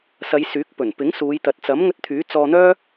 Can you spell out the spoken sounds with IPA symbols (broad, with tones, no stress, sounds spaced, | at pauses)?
s ɐ˨˧ j s yː˨˥ k̚ p ɵ˨˩ n p ɪ˨˥ ŋ s uː˨˧ j t̪ ɐ˨ t̚ t͡s ɐ˨˥ m ŋ ɵ˧ t̚ t̪ʰ yː˨˥ t͡s ɔː˧ n̪ œː˥